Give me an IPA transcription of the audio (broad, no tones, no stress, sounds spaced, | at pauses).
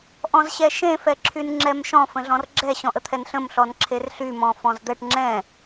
ʔ ɔ̃ z ɕ ɛ ʃ ẽ f ɛ ǁʰ y n ŋ͡ǁ ɛ m ʃ ɔ̃ f ə̃ ɮ ɔ̃ r ɡ͡ǁ ɛ ɕ ɔ̃ ʔ ə t̪ʰ ɛ n ɬ ə̃ m ɬ ɔ n ǁʰ e r ɬ y m ɔ̃ f ɔ̃ z d̪ ɛ ʈ ŋ͡ǁ ɛ̃